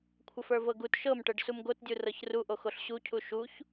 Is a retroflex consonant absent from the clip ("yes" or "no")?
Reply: no